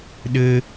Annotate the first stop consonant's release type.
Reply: implosive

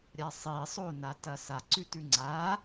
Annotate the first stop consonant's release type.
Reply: plain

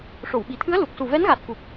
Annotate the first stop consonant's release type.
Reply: implosive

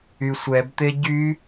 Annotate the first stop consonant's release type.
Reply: plain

